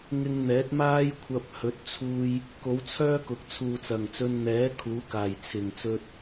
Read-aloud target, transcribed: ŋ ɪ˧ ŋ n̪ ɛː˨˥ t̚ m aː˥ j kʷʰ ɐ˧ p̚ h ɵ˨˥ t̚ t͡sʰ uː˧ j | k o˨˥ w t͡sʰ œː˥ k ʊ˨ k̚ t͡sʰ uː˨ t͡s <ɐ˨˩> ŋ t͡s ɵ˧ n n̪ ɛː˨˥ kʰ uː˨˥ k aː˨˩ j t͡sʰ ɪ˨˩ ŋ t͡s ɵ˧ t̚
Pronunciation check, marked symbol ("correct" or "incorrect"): correct